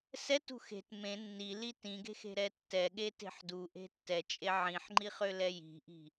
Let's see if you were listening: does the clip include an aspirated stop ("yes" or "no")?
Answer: no